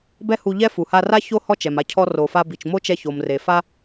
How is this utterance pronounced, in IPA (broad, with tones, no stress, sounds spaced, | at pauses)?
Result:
b ɛ˥ h u˧ ʎ ɛ˥ f u˩ h a˧ r a˥ ç o˥ h ɔ˥ t͡ʃ ɛ˩ m a˧ cʰ ɔ˧ r o˩ f a˧ b i˩ t͡ʃ m o˥ t͡ʃ ɛ˧ ç o˩ m r e˩ f a˥